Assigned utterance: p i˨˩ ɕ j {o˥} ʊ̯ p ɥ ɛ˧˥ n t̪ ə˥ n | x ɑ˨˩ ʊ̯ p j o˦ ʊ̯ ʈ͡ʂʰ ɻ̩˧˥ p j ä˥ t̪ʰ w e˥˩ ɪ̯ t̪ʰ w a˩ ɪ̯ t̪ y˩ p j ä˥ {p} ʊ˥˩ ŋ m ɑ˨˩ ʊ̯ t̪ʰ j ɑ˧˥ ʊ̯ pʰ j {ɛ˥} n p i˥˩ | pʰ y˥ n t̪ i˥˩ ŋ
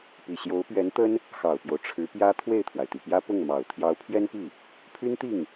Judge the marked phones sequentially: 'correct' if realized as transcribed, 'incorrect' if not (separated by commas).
incorrect, correct, correct